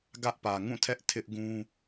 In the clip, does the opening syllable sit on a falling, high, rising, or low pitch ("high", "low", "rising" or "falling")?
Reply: high